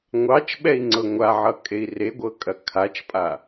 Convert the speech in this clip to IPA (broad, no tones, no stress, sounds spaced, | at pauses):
ŋʷ ɑ t͡ʃ ɓ ɛ i̯ ŋ͡ǀ ɤ ŋʷ a ʕ ʌ kʼ e i̯ r e ɡʷ ɤ kʼ ɐ kʰ a t͡ʃ pʼ a